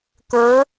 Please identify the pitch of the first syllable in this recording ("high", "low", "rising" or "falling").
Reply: rising